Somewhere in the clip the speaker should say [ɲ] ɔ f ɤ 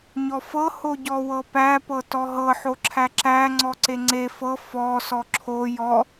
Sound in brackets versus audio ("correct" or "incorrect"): correct